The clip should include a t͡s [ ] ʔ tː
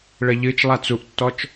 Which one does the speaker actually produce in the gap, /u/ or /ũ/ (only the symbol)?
u